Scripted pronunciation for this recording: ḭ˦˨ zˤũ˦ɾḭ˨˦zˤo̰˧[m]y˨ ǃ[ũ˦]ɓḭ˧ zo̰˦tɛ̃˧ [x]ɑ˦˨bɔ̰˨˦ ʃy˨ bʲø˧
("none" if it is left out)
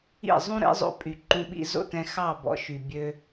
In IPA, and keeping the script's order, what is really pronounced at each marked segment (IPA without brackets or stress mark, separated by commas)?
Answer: pʼ, ũ˧, x